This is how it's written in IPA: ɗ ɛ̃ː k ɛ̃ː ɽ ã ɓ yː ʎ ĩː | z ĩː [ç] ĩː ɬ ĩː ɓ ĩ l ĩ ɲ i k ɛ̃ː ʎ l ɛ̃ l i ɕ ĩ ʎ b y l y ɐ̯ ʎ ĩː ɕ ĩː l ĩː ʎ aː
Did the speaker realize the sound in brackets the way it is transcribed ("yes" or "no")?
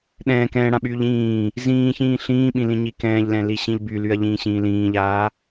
yes